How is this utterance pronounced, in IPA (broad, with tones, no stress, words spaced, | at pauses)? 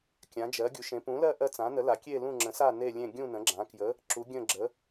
kʲã˨˥d͡ʒɜ˨˥ ɡʲu˨˥ʃẽ˨˥ pũ˨˥lɜ˥˧ ʔɜ˥˧t͡sã˨˥nə˨˥la˨˥ kʲe˥˧lũ˥˧ ŋ͡ǁə̃˨˥sa˥˧ ne˥˧lʲẽ˥˧ ɡʲũ˥˧ nə̃˨˥ɡ͡ǁã˨˥ kjə˨˥ | ǁu˨˥ɡʲə̃˥˧ɡ͡ǁə˨˥